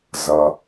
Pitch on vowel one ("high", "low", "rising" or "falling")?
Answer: low